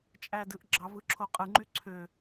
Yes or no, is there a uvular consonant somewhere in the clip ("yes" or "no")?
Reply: yes